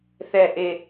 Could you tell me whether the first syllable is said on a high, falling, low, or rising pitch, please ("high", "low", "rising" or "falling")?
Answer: low